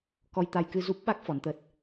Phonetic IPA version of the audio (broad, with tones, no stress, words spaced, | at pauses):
kɔ˧jt̪a˧jkɨ˧zu˦˥p̚ ɓa˦˥k̚ fɔ˨˦nt̪ə˦˥t̚